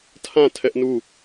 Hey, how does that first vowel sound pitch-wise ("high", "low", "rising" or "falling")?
falling